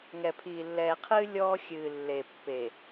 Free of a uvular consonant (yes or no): no